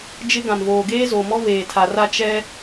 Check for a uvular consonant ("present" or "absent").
absent